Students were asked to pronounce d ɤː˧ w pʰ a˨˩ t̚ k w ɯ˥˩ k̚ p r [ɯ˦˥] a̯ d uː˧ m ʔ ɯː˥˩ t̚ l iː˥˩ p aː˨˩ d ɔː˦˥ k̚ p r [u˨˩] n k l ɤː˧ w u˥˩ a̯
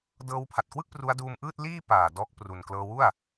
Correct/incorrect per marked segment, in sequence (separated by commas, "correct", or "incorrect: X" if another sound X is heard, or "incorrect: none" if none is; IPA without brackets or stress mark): incorrect: u˦˥, correct